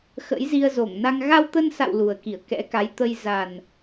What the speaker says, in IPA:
x ə̰˧˥ j z i˧ ə̯ z o˧˩ ŋ n a˧ ŋ ɣ a˧ w t̪ ə˧ n s a̰˧˨ w l u˨˩ ə̯ k i˧˩ ə̯ k ɛ̰˧˥ k a˨˦ j t̪ ə˧ j z a˨˩ n

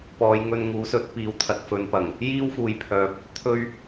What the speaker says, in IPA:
p ɔː˨˧ j ŋ ɵ˧ n ŋ uː˨˥ s ɵ˨˥ t̚ p iː˨˥ w t̪ʰ ɐ˨ t̚ f ɵ˨˧ n p ɐ˨˩ ŋ | j iː˥ w f uː˨ j pʰ œː˨ p̚ | t̪ʰ ɵ˧ ɥ

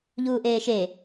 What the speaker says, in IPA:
ʎ uː ʔ eː ʃ e

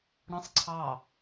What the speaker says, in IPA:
ɽ ə̃ sˤ ǀʰ ɑ

